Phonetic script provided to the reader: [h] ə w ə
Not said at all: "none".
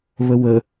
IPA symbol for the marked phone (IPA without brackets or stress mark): β